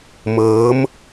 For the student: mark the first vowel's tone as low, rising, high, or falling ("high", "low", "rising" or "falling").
rising